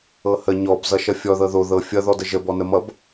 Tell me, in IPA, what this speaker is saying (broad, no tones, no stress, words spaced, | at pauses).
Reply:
ɤhə ɲɔb zʌʃʌfʲɔ ðɤðo ðɤ fʲʌ ðɔdəʒə bɔnəmʌb